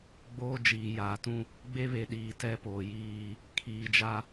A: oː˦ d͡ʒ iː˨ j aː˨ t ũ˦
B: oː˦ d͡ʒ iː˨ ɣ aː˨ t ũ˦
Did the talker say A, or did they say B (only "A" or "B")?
A